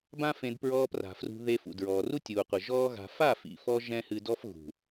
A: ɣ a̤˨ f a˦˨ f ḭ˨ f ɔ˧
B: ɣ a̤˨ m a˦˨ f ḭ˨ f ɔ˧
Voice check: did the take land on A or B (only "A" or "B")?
A